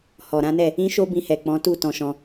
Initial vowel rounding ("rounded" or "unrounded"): rounded